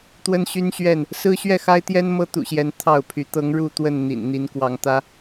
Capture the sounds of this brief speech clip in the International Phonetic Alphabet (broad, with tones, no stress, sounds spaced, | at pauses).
t̪ w ə˦ n ɕ y˦ n ɕ ɥ ɛ˥˨ n | s ɹ̩˦ ɕ ɥ ɛ˥˨ x a˦ ɪ̯ t̪ j ɛ˦ n m ɤ˦ t̪ ṵ˨˩ ɕ j ɛ˨˦ n t̪ʰ ɑ˥˨ ʊ̯ pʰ y˨˦ t̪ ɤ˨˦ ŋ ɻ u˥˨ t̪ w ə˥˨ n n̪ ḭ˨˩ n n̪ i˨˦ n k w ɑ˨˦ ŋ t̪ ä˦